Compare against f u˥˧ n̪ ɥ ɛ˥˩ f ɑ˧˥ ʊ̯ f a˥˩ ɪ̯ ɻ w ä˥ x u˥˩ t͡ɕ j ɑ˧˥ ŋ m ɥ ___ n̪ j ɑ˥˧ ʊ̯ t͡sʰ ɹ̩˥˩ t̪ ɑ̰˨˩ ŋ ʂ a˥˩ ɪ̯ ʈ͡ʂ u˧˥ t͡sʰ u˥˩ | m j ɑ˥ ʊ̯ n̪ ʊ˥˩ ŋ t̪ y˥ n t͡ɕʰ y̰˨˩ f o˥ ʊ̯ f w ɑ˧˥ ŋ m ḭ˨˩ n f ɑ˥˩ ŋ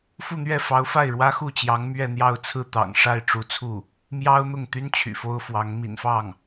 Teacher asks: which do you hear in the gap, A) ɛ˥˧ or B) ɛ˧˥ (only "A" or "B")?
A